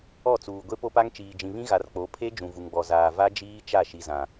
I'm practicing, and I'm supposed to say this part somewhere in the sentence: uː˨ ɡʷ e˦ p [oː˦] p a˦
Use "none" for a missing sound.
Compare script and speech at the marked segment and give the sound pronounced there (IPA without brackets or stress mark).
o˦